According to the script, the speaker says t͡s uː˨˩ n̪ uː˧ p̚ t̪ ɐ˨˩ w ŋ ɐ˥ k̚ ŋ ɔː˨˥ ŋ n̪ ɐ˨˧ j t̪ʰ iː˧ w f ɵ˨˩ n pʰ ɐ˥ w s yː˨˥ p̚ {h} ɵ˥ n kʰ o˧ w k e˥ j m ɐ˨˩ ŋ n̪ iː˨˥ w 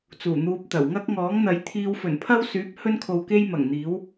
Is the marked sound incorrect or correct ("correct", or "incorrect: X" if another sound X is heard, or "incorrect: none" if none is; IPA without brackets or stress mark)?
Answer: correct